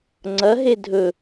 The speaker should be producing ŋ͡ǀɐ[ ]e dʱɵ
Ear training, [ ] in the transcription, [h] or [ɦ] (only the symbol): ɦ